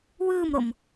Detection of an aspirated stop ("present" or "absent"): absent